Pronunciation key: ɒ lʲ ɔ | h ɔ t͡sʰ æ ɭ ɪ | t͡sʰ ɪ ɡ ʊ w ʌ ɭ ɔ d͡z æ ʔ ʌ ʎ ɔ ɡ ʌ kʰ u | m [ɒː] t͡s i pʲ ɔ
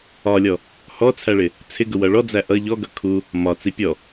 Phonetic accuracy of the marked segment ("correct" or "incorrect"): incorrect